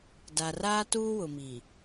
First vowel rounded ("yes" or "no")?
no